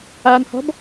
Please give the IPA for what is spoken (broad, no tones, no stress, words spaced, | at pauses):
anhɔ̤b